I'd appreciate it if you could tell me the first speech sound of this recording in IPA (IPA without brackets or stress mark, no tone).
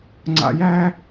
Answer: ŋ͡ǀ